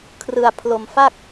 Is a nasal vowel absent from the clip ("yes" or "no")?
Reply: yes